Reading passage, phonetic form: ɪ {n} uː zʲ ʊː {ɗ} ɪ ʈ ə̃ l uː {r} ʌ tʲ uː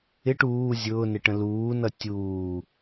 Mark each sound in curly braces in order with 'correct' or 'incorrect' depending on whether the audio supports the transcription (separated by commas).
incorrect, incorrect, incorrect